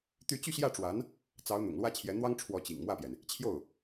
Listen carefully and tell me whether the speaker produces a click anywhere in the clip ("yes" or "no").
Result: no